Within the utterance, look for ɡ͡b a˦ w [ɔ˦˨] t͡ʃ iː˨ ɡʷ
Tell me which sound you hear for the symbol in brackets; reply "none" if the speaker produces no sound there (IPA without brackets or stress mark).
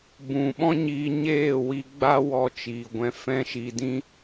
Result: ɔ˧